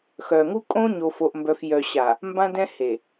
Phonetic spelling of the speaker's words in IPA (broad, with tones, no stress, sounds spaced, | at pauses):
x œ˨ ŋ u˦ kʼ õ˦ ɲ o˨ f o˨ ʔ m b œ˨ f j œ˨ ɕ a˨ | m b ã˦ d ɛ̃˦ h e˨